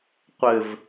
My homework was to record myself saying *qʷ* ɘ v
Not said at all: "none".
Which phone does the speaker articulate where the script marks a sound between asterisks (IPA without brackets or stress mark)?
qʷ